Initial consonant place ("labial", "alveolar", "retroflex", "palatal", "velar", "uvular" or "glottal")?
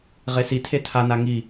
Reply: uvular